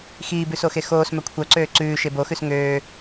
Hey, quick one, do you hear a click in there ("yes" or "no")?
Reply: yes